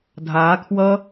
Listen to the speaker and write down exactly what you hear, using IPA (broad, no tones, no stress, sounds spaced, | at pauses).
dʱ aː kʰ w ʌ